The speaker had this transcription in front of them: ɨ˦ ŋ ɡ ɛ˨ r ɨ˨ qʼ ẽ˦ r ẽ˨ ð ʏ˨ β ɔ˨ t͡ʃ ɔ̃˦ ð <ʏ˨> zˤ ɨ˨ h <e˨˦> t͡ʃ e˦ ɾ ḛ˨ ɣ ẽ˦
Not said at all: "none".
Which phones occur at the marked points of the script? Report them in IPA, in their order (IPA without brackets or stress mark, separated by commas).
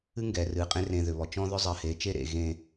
ʏ˦, e˨˦